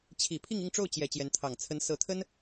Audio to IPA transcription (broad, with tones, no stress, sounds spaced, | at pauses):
t͡ɕʰ i˨˩ pʰ i˥˧ ŋ i˥˧ ŋ ʈ͡ʂ o˥˩ ʊ̯ t͡ɕ j ɛ˨˩ t͡ɕ j ɛ˧˥ n t̪ʰ ɑ˨˩ ŋ t͡sʰ ə˧˥ n s ɤ˧˥ t̪ʰ ə˥ n